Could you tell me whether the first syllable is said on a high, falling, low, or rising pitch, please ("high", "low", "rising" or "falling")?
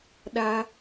high